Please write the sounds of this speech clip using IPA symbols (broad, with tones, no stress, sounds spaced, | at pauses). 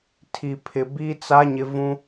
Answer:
tʰ i˨ pʰ ɪ˨ b i˦ t͡s a˦ ɲ ɪ˦ v ũ˦